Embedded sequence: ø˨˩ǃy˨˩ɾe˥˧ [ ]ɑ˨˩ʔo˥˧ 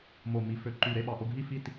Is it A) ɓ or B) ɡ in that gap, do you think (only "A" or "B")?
A